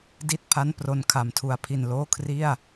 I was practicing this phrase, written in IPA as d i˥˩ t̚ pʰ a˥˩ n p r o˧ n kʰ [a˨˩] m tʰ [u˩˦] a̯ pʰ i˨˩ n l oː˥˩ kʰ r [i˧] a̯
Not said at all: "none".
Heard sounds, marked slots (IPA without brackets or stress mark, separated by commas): a˩˦, u˩˦, i˥˩